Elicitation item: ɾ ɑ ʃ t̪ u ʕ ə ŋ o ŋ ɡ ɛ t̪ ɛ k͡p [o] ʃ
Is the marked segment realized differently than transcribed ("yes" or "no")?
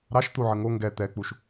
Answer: yes